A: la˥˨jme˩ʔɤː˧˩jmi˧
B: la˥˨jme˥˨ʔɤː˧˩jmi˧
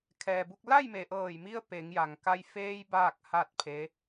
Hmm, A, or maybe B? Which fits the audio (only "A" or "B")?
A